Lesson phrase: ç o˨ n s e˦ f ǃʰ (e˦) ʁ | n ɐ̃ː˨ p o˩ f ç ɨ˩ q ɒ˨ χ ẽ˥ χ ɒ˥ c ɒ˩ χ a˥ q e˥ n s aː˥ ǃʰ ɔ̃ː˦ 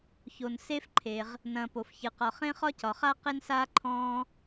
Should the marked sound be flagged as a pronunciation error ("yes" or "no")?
yes